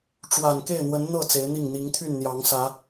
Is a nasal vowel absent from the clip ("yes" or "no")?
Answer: yes